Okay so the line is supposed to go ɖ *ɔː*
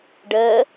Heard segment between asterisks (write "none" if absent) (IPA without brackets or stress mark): əː